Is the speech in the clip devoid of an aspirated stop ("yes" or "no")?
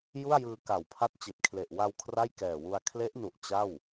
no